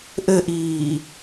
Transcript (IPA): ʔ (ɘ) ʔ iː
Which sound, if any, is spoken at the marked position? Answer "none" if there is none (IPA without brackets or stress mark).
ɘ